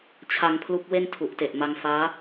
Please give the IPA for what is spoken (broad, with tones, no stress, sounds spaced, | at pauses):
t͡ɕʰ a˧ ŋ pʰ l u˦˥ k̚ w e˥˩ n tʰ u˨˩ ʔ t e˨˩ ʔ m a˧ ŋ f aː˦˥